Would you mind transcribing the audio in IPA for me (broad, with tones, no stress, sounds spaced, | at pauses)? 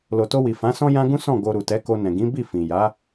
l o˨ t o˧ w i˨ f ã˨˦ s ɔ̃˦ j ã˦ ɡ ũ˦ s ɔ̃˦˨ ɡ o˧ ɾ u˨ t ɛ˨˦ k o˧ n ɛ̃˨ ɡ ĩ˨˦ b i˦˨ f ĩ˨ j a˨˦